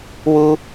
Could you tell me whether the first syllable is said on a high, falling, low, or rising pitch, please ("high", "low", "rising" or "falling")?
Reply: high